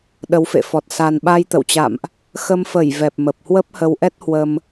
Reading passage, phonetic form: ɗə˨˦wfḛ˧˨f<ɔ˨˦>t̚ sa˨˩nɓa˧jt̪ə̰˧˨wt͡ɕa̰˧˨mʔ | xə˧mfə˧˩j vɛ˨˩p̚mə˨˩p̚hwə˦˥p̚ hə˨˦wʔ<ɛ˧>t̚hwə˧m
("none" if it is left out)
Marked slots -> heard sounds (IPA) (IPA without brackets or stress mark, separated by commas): ɔ˨˩, ɛ˦˥